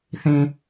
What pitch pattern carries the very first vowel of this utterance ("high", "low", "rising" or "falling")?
low